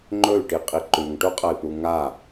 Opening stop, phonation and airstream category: click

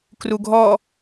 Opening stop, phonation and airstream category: plain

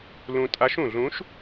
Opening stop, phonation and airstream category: ejective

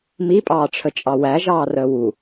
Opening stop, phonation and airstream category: ejective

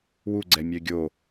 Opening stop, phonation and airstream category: click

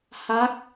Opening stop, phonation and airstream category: plain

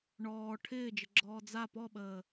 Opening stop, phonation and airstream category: aspirated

